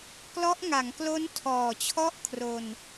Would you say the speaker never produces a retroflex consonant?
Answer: yes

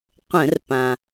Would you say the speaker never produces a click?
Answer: yes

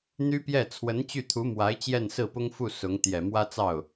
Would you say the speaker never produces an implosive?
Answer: yes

